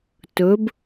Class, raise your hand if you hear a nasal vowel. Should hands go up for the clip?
no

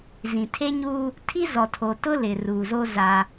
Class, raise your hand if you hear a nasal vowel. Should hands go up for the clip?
yes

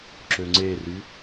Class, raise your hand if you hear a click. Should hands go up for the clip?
yes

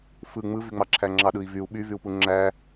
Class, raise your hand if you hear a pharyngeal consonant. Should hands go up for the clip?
no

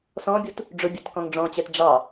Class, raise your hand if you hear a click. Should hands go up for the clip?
no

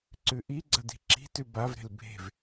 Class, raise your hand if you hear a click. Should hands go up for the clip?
yes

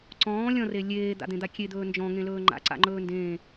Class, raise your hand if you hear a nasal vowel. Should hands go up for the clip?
yes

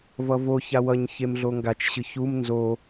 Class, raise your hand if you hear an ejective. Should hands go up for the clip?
no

